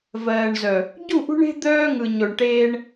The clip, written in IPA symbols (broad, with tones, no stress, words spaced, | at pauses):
vɜː˨ɳzœ˨ | ɟu˦˨ʔṳ˦ɳe̤˦ d̪œː˦ŋɯ˨ ɲo˨ɳ ʈeː˦ɳ